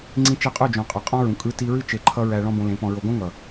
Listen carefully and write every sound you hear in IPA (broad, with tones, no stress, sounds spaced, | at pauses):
ŋ͡ǀ ĩ˧ t͡ʃ ɛ˧ qʼ o˦˨ d͡ʒ õ˨ qʼ ʌ˨ qʼ ɔ̃˦ ɹ ũ˨ kʼ ɯ˦ t i˧ ɹ ɨ˦ t͡ʃ e˧ ǃʰ ʌ˦ ɹ æ˧ ɭ ɔ̃˦ b õ˧ l ẽ˨˦ p ɔ̃˧ ɹ o˧ ɡ õ˦ ŋ ʌ˨